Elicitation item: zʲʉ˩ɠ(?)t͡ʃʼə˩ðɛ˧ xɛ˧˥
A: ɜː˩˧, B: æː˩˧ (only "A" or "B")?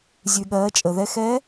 A